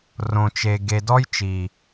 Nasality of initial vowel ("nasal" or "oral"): nasal